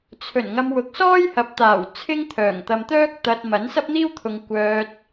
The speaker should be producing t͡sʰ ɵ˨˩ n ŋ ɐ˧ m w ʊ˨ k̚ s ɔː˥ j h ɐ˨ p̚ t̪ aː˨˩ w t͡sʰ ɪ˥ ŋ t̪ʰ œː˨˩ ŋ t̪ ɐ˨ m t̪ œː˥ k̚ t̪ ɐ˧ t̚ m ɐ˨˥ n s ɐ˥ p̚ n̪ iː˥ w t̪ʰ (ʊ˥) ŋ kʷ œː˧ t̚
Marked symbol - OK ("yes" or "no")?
no